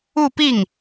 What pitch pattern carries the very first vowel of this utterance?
falling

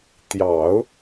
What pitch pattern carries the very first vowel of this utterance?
low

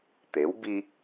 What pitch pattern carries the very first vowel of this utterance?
rising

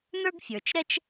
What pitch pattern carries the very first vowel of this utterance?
high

